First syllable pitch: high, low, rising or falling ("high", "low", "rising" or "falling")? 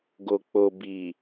low